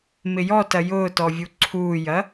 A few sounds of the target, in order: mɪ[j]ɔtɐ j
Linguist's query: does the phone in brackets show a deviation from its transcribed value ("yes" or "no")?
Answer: no